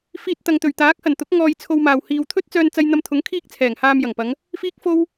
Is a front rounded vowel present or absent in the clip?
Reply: present